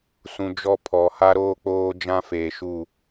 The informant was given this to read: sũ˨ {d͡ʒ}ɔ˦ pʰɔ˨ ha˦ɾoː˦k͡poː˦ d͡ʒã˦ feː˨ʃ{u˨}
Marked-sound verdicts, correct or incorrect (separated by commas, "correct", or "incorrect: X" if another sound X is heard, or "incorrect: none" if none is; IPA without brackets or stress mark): correct, incorrect: u˦˨